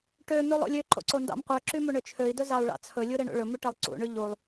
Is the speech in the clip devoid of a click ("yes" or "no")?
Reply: no